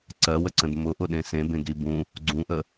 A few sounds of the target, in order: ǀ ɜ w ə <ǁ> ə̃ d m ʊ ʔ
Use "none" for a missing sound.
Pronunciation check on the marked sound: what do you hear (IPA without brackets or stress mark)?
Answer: ǀ